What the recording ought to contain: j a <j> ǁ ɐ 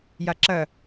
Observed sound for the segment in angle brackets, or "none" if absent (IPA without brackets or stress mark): none